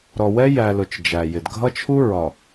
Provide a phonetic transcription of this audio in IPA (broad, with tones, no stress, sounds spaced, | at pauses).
ɾ ɔ˨ w ɛ˦ j æ˨ l ʊ˨ t͡ʃ d͡ʒ æ˨ j ɪ˨ d ɡʱ ʌ˦ t͡ʃʰ u˦ ɹ ɒ˨